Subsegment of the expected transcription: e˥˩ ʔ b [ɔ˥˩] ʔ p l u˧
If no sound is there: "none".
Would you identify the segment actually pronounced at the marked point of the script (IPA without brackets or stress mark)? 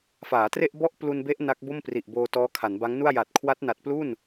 ɔ˥˩